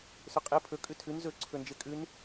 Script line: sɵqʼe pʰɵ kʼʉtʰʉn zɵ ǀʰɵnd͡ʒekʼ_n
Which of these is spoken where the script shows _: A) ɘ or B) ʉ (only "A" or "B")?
B